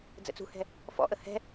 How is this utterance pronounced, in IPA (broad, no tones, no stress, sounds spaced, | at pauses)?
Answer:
d͡z ə̰ t͡s ṳ h ɛ̤ | f ɔ̰ ʔ ə h ɛ̤